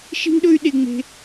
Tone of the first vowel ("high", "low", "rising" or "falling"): high